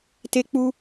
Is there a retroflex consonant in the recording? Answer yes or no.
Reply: no